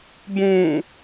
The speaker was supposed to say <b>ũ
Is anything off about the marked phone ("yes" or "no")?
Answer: no